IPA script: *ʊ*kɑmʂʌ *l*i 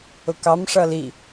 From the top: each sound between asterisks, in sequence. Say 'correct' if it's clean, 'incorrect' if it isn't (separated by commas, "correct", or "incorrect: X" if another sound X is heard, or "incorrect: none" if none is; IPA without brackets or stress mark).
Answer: correct, correct